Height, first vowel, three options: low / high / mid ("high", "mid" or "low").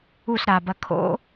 high